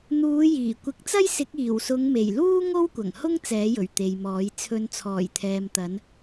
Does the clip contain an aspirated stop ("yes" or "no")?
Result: yes